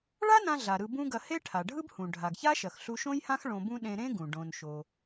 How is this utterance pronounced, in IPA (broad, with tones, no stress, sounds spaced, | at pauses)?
ɭ a˥ n ã˧ ɮ a˩ ɾ ɯ˧ b ũ˥ ɡ ɐ˧ h e˥ ʈʰ a˩ ɖʱ ɯ˥ b h ũ˩ ɖʱ a˩ ɡ ç a˥ ʃ ɐ˩ x ɬ u˧ ʃ õ˥ j h ã˥ x ɭ õ˧ b ũ˥ ɗ ẽ˧ ɾ ẽ˥ ɡ ũ˩ ɖ õ˩ n ʃ o˩